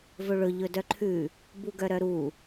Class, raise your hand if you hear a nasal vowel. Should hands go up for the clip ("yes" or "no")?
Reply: no